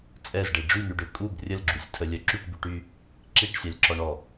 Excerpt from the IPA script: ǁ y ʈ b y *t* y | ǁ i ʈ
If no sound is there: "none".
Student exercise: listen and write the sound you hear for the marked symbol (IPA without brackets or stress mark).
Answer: ʈ